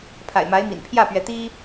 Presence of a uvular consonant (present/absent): absent